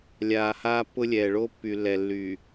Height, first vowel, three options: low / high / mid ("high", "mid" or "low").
low